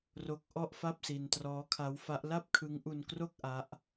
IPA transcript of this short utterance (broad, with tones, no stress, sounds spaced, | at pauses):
r o˦˥ k̚ ʔ ɔ˥˩ ʔ f a˥˩ p̚ s i˧ n t r ɔː˦˥ kʰ a˦˥ w f a˦˥ ʔ l a˥˩ p̚ kʰ ɯ˦˥ ŋ ʔ u˧ n k r o˥˩ k̚ ʔ a˦˥ ʔ